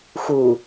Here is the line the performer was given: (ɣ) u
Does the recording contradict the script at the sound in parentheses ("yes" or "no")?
yes